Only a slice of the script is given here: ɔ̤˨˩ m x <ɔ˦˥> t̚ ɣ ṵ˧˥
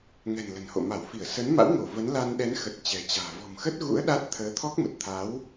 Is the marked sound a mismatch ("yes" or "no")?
yes